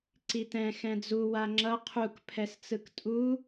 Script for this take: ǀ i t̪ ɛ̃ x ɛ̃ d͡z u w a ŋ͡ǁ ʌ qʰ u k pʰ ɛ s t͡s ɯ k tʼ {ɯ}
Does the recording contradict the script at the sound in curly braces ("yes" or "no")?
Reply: yes